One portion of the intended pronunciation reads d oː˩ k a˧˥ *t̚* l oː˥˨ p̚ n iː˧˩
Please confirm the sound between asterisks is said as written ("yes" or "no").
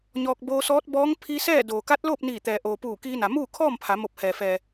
yes